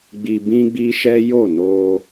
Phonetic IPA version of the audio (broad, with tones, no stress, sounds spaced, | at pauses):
ɡ͡b i˧ b ĩ˦ ɡ͡b i˦ ʃ ɛ˦ j o˦˨ n o˧